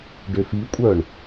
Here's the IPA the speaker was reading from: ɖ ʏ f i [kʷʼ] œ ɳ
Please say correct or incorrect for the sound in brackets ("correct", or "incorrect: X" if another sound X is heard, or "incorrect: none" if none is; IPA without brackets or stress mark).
correct